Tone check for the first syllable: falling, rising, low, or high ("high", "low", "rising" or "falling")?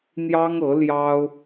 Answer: high